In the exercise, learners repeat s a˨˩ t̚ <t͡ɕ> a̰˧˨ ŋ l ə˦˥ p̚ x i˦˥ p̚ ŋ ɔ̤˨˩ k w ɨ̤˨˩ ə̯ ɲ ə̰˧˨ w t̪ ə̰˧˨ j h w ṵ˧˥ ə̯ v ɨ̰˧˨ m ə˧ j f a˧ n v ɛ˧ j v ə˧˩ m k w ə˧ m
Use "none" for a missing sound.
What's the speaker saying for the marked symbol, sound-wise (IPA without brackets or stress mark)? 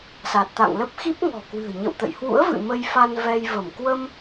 t̪